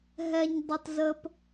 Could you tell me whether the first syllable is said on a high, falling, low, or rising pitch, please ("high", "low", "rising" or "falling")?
high